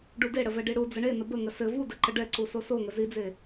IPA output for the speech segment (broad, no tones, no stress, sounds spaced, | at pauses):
ɖ u d e ɽ ə v ɛ ɖ i ɽ u d͡z ə ɳ e n ə b ə ŋ ə s ɘ v u d ə ǃ ə ɖ ɛ ǀ u s o s o ŋ ə z i d͡z e